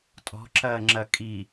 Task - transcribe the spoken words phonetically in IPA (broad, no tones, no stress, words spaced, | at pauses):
tʼɔ̤ǁɐːŋ͡ǁɐ kʼi